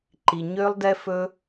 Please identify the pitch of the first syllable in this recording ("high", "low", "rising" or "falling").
low